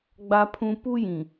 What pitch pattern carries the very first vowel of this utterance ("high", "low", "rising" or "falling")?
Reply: high